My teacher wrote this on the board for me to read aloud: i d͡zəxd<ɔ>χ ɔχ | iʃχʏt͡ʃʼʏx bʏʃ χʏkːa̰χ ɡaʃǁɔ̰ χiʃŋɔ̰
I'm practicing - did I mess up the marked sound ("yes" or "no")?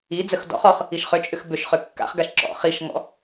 yes